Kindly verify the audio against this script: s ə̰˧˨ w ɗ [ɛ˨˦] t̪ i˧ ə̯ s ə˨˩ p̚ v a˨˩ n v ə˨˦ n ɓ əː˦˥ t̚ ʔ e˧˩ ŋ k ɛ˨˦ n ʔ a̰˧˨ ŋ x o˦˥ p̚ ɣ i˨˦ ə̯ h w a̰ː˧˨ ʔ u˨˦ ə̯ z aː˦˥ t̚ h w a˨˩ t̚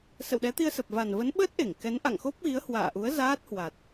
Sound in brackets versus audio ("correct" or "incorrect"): correct